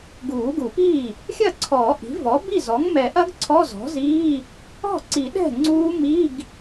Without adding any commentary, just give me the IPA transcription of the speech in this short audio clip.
ɡ uː˨˩˦ ɡ u˨˩˦ p iː˥˩ | xʲ ɐ˥˩ ǀʰ ɔː˨˩˦ ʔ i̤˩˥ v ɔ˩˥ b i˥˩ z ɔ˩˥ ŋ m ɛ˨˩˦ ʔ ɐ˦˥ ɡ ǀʰ ɔ˧˥˧ z ɔ̤˩˥ z iː˧˥˧ | ɔ̤˥˩ ǀ i˨˩˦ ɗ ɛ̤˥˩ ŋ͡ǀ uː˦˥ m i˧˥˧ ɡ

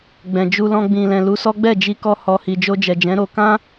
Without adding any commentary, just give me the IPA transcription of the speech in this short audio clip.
ɡ͡b ɛ̃˨ d͡ʒ u˧ l ɔ̃˧ ɡ͡b ĩ˨ l ɛ̃˨ l u˨˦ s ɔ˦ ɡ͡b ɛ˦˨ d͡ʒ i˧ k ɔ˧ h ɔ˨ h i˨ d͡ʒ o˧ d͡ʒ ɛ˨ d͡ʒ ɛ̃˨˦ ɾ o˧ k ã˦

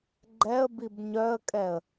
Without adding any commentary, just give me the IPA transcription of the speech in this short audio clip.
ɡ͡ǃ ɛ ə̯ b i b ɲ œ ə̯ kʼ ɛ ə̯

